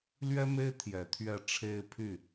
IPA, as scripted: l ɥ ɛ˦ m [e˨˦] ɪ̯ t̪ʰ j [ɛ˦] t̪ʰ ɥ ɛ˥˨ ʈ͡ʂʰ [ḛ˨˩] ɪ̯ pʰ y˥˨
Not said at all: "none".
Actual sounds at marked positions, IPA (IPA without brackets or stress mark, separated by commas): e˦, ɛ˨˦, e˦